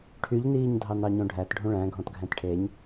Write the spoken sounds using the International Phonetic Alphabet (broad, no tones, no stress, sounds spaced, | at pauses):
ʈʰ y ʎ n iː ɲ dʱ ɑ n ɑ ɲ õ ɖʱ æ t ɖʱ ũ ɭ æ̃ ɡʱ ɔ̃ t ɡʱ æ̃ t ʈʰ e ɲ